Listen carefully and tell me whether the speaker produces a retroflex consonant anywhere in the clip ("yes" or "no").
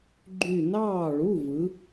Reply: yes